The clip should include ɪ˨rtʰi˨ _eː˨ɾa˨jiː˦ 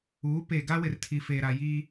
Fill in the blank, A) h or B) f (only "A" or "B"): B